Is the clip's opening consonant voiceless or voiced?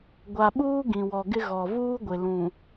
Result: voiced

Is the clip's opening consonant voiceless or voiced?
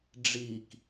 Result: voiced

